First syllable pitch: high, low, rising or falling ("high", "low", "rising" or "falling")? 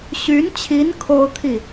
rising